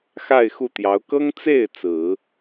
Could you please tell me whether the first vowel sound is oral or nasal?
oral